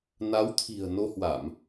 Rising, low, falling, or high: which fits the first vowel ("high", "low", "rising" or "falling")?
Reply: rising